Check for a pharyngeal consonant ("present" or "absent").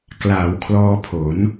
absent